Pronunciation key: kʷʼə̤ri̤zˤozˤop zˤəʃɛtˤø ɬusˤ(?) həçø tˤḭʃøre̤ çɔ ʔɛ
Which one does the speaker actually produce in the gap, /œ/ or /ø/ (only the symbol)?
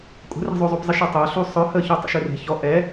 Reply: œ